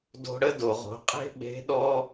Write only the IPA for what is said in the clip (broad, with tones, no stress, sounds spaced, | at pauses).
d o̤˧ ɽ ə˥ d o˩ ʁ o̤˩˧ qʼ e̤˥ ɓ e̤˧˥ ɗ ɔ˥